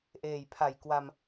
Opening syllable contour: low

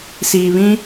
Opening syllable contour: low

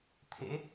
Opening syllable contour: rising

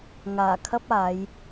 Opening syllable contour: low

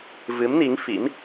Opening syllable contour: rising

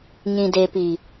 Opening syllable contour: low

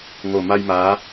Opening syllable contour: low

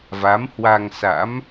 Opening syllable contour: rising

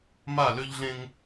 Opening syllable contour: falling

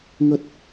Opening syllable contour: high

